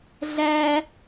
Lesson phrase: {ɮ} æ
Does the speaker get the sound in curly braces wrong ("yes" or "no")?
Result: no